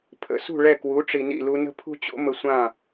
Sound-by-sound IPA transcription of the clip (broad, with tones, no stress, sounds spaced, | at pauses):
pʰ ə̰˩˥ s ṳ˥˩ ɭ ɛ˥˩ k w u˩˥ ʈ͡ʂ i˩ n ḭ˥˩ l u˧ n ə̤˥ pʰ ṳ˥ t͡ɕ o̰˥ m ə˧ sʷ ã˥˩